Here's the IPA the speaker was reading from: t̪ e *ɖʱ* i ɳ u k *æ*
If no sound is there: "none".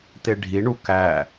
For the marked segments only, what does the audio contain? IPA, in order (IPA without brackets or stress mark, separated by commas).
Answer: ɖʱ, æ